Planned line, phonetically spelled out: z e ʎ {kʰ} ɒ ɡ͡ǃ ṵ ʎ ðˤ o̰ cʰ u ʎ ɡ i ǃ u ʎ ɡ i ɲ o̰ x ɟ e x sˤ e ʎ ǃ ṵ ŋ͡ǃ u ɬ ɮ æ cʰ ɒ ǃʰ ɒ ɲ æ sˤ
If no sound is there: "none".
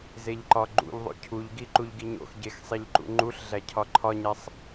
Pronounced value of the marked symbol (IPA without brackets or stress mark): ǃ